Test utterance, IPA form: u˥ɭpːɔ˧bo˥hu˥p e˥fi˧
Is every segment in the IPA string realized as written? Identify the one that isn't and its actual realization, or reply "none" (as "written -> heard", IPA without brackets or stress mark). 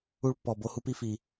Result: e˥ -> i˥